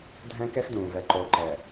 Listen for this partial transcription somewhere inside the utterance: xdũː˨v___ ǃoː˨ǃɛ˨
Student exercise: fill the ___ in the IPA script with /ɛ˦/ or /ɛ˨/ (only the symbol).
ɛ˨